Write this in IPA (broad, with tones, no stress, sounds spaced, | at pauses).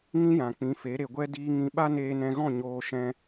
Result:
ŋ ĩ˦ j ã˨ k͡p ĩ˨˦ f e˨˦ ɾ e˨ ɡʷ ɛ˧ d iː˦ ŋ ĩ˦ ɓ a˦ n eː˧ n ɛ̃˧ ɣ ɔ̃˦˨ ɲ oː˧ ʃ ɛ̃˦